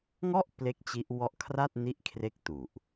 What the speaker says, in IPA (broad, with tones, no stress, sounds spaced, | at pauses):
ŋ ɔ˥˩ ʔ p l e˥˩ k̚ t͡ɕ i˦˥ ʔ w ɔ˥˩ ʔ kʰ r a˥˩ t̚ n i˦˥ ʔ kʰ r e˦˥ k̚ t u˨˩ ʔ